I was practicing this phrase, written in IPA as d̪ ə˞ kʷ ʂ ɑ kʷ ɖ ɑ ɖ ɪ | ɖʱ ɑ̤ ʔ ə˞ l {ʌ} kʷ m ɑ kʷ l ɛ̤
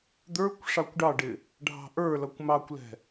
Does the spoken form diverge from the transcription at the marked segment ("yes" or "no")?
no